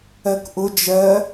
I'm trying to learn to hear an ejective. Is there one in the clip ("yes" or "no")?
no